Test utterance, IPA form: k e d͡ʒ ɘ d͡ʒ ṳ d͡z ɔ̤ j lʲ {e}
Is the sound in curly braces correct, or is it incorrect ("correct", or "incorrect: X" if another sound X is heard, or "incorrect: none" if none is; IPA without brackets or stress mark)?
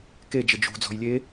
correct